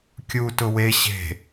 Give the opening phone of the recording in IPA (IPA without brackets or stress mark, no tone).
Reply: kʲ